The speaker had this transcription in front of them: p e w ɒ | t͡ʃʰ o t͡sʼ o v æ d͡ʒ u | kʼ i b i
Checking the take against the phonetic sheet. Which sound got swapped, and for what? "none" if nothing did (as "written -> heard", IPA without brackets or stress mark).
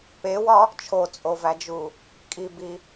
none